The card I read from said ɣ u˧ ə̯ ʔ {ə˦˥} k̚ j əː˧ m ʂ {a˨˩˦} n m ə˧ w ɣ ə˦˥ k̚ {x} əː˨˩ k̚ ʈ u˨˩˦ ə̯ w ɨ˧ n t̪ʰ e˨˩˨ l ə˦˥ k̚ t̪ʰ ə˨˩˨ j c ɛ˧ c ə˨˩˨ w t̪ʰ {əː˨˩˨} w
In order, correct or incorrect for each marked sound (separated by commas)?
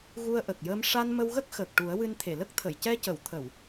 incorrect, incorrect, correct, incorrect